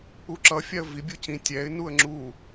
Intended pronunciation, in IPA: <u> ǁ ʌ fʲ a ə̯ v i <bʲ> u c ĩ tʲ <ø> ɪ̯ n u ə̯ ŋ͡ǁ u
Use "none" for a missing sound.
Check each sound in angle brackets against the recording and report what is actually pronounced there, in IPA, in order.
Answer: u, bʲ, ɛ

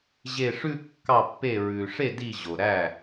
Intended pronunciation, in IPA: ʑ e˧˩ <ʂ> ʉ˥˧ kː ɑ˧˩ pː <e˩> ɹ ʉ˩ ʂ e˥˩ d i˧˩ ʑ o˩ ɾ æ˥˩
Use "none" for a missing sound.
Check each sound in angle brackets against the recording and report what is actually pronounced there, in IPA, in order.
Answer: ʂ, e˧˩

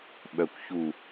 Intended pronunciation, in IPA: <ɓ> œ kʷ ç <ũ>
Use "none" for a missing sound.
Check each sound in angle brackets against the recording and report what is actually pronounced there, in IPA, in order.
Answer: ɓ, u

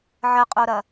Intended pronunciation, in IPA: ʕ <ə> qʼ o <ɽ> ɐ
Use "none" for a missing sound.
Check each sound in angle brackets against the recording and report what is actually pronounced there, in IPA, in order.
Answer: ə, ɾ

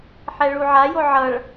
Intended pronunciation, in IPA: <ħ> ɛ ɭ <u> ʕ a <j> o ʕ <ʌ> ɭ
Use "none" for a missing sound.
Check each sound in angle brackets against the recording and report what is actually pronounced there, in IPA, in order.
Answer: ħ, u, j, ʌ

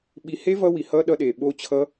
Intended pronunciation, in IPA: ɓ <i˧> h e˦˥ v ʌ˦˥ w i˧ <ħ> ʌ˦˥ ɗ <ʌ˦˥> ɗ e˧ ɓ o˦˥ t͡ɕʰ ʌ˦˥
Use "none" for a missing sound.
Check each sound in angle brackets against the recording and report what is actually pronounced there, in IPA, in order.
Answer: i˧, h, ʌ˦˥

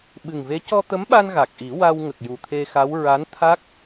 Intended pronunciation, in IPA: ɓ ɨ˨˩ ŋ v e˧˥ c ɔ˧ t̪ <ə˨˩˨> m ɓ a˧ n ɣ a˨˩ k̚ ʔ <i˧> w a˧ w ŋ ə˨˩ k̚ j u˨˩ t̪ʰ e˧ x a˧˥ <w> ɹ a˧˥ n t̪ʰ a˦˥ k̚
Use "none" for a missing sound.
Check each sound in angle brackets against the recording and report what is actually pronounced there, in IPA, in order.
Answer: ə˧˥, i˨˩˦, w

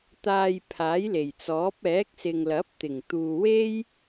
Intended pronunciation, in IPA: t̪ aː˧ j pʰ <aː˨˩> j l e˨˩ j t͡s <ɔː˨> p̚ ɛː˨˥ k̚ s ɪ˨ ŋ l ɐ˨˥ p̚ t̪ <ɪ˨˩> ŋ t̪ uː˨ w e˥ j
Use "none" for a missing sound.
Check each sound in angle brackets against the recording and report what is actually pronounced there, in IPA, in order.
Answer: aː˨˥, ɔː˨˥, ɪ˨˩

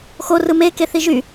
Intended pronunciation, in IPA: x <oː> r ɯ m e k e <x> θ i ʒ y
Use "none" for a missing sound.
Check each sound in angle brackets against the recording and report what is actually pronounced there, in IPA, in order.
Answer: o, none

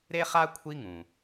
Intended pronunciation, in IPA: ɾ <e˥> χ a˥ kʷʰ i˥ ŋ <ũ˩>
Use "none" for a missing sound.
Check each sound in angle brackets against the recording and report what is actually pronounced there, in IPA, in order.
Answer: e˥, ũ˩

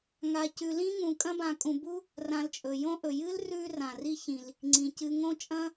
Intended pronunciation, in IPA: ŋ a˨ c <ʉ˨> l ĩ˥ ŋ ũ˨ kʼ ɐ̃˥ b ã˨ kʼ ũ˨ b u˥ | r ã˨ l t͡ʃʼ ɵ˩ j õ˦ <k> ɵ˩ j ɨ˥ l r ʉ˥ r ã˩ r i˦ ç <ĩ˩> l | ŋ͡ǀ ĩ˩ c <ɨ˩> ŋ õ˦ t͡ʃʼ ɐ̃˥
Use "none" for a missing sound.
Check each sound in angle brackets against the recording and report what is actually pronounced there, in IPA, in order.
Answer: ʉ˨, ʔ, ĩ˩, ɨ˨

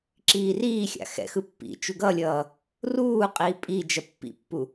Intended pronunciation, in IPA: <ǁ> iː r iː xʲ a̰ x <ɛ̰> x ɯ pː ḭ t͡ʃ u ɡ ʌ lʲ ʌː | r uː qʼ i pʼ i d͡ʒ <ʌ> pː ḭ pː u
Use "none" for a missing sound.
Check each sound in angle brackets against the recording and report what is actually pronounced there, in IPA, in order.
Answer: ǁ, ɛ̰, ʌ

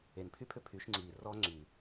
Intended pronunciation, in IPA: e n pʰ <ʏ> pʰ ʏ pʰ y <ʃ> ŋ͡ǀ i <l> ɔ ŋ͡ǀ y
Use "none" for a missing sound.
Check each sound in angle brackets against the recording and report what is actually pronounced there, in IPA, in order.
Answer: y, ʃ, r

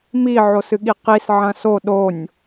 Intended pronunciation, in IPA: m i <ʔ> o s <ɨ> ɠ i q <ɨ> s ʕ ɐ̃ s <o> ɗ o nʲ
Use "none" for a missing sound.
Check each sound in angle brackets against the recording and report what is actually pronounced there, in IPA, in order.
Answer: ʕ, ɨ, i, o

